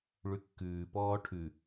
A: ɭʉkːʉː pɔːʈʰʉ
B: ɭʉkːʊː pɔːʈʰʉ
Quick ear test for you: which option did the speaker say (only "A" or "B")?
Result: A